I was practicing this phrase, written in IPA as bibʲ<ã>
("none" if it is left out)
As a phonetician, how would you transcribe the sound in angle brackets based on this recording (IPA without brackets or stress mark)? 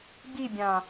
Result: ã